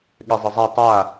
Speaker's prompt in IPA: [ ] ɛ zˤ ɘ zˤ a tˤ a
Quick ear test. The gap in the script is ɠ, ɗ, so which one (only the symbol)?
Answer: ɠ